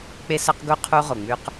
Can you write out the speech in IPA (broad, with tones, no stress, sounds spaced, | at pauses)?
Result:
k͡p e˦ s ɐ˦ q ɡ u˦ qʰ u˦ ʁ o˨ ŋ͡m ʉ˦ q